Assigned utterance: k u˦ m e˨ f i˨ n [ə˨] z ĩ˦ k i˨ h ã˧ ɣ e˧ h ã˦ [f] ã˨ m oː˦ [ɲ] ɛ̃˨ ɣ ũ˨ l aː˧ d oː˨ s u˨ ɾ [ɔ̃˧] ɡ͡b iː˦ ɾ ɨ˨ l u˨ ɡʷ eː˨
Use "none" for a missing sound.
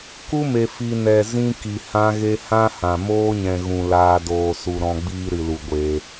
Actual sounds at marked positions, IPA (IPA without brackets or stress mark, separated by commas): ɛ˨, h, ɲ, ɔ̃˧